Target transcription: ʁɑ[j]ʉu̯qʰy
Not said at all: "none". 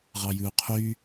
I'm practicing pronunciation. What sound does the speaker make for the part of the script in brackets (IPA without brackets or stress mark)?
j